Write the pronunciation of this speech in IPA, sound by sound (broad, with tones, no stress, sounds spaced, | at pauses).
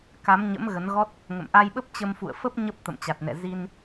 k a˨˦ m ɲ ə̰˧˥ m ɣ ə˨˦ n ɣ ɔ˦˥ t̚ | ŋ ə̰˧˨ m ʔ a˧ j ɓ ə˦˥ p̚ t͡ɕ ə˧ m f ṵ˧˨ ə̯ f ə˦˥ p̚ ɲ ə˦˥ p̚ t̪ ə̰˧˨ m t͡ɕ a˨˩ t̚ n ɛ̰˧˨ z i˧ n